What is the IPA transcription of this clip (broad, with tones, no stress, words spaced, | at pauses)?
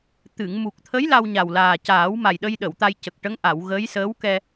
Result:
t̪ɨ˨˩˨ŋ mu˨˩k̚t̪ʰə˧˥j la˧wɲa˨˩wlaː˨˩caː˨˩˦w ma˨˩jɗə˧jɗə˨˩˨w t̪a˧jcə˨˩k̚ ʈə˧˥ŋʔa˨˩˨wɣə˧˥j səː˧˥wkɛ˧